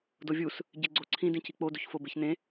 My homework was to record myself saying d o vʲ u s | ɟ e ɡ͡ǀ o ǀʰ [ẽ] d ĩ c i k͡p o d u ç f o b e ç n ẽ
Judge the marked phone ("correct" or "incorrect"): incorrect